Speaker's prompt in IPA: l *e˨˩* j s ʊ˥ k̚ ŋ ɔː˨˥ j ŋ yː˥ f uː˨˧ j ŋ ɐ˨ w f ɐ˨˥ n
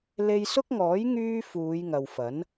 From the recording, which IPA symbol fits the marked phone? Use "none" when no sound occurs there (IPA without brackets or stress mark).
e˧